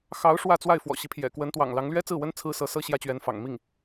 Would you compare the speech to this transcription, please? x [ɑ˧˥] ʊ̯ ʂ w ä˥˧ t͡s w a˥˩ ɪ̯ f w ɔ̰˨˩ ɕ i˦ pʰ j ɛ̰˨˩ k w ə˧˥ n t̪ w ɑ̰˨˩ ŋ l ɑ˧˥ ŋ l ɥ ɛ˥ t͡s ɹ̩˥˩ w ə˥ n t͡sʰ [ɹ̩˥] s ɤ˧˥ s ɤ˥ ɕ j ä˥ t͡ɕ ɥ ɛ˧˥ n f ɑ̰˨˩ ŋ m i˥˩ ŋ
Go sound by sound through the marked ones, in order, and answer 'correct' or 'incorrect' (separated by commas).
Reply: correct, correct